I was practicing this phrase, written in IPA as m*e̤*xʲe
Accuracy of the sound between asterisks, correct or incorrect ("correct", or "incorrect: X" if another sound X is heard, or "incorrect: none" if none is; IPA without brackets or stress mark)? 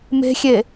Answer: correct